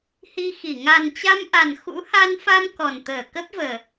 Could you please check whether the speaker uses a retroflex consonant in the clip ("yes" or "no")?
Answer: no